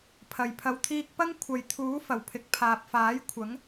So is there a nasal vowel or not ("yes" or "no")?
no